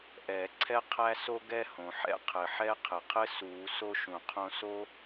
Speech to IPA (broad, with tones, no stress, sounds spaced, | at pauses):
ʔ ɛː˨˩˦ ǀʰ ɛ˥ qʰ æ˥ s o˥ ɡ ɛ˥ h õ˩ ħ ɛ̰˥ qʰ ɘ˩ ħ ɛ˥ qʰ ɘ˩ qʰ ɘ˥ s uː˨˩˦ s o˥ ʃ ũ˩ qʰ õ˥ s o˥